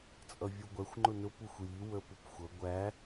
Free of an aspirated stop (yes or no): yes